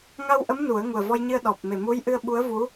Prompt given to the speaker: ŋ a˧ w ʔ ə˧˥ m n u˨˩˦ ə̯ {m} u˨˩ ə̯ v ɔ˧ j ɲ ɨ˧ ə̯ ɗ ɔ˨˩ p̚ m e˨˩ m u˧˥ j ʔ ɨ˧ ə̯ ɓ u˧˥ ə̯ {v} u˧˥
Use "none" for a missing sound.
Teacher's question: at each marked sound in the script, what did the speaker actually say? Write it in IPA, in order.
ŋ, v

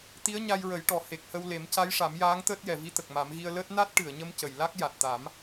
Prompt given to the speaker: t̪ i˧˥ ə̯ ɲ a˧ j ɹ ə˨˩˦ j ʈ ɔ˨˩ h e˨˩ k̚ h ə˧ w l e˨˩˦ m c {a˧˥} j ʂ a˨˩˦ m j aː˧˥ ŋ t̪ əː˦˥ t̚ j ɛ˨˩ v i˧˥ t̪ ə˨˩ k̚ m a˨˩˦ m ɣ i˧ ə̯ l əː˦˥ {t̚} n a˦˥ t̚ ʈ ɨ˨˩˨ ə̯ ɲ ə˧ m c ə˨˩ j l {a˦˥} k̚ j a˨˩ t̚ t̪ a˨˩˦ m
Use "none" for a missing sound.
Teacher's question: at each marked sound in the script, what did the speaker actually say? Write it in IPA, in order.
a˧˥, t̚, a˦˥

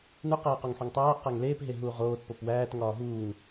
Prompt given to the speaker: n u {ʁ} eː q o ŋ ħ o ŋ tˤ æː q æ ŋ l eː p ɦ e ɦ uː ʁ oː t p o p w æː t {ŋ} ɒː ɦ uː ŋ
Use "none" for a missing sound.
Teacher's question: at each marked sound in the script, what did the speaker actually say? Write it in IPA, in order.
q, ŋ

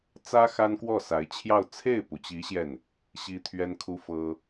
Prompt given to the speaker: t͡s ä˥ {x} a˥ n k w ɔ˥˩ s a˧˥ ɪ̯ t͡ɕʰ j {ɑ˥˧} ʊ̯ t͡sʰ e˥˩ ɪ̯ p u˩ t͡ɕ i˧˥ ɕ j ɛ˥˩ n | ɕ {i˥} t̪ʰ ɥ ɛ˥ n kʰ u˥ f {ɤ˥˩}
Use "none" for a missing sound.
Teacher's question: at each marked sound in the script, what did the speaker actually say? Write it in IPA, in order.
x, ɑ˥˧, i˥, ɤ˥

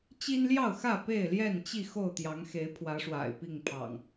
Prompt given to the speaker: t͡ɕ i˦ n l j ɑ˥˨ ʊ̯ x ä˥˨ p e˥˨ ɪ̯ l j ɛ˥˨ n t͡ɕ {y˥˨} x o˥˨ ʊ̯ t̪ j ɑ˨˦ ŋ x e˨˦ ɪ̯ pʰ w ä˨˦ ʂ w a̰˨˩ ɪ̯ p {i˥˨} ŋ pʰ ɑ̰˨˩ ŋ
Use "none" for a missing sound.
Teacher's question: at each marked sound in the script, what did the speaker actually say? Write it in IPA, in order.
i˥˨, i˥˨

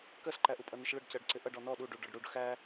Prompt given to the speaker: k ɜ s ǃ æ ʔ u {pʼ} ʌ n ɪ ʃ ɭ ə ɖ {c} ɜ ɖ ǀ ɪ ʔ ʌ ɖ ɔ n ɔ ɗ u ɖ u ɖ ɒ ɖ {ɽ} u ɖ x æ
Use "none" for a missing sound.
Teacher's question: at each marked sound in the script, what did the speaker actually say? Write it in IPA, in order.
pʼ, c, ɽ

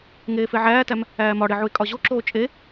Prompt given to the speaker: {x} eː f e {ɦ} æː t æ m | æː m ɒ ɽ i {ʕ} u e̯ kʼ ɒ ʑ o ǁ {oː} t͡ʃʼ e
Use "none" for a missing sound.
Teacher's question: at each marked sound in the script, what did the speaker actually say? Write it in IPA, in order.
ŋ, ʕ, ʕ, oː

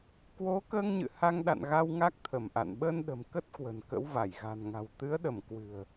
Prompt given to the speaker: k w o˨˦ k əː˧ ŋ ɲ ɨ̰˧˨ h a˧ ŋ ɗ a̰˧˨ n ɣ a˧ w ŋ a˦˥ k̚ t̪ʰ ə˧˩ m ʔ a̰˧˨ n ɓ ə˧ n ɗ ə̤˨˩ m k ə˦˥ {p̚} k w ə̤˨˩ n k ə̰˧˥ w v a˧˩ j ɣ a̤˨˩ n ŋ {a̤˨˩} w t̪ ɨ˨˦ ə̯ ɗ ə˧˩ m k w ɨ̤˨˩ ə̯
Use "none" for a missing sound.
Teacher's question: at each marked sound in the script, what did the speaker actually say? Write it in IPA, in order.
t̚, a̤˨˩

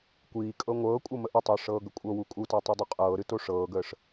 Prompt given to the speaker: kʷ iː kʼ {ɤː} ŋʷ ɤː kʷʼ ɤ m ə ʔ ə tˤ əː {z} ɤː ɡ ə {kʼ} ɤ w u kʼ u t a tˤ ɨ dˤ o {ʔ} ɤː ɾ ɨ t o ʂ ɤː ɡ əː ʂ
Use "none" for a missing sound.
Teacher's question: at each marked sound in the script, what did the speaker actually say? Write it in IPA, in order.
ɤ, ʂ, kʷʼ, qʼ

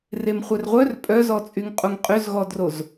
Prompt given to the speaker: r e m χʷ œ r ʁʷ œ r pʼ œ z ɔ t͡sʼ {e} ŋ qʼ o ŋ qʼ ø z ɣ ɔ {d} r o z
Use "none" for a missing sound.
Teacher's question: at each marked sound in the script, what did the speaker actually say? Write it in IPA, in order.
y, d

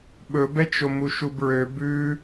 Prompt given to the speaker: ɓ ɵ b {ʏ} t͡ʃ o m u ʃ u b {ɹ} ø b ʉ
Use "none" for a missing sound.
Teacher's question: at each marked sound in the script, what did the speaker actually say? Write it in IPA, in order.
ɛ, ɹ

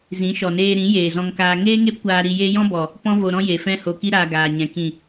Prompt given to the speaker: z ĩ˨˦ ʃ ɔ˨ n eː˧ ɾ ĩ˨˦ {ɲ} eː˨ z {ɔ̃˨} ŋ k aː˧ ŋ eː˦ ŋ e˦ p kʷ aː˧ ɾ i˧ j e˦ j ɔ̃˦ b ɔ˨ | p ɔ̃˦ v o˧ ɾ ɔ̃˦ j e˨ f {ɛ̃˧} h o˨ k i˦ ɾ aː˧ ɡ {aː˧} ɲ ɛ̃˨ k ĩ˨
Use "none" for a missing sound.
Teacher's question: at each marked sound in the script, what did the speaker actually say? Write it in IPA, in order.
j, ɔ̃˧, ɛ̃˧, aː˨

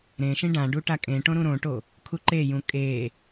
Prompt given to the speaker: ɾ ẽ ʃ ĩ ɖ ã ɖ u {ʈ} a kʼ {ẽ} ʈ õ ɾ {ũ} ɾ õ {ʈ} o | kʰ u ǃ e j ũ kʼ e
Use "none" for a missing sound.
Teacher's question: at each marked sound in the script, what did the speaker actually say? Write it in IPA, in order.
ʈ, ẽ, ũ, ʈ

